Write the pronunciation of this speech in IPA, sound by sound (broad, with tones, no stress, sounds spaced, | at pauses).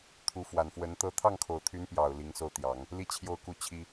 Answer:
t̪ʰ u˧˥ f w a˨˩ n f w ə˧˥ n t̪ ɤ˥˧ t̪ʰ ɑ˥˩ ŋ kʰ o˨˩ ʊ̯ t̪ʰ y˧˥ n p j ɑ˨˩ ʊ̯ l i˧˥ ŋ s o˥˩ ʊ̯ t̪ j ɑ˨˩˦ ŋ | l i˥˧ t͡ɕʰ j o˥˧ ʊ̯ k u˥˩ t͡ɕʰ i˥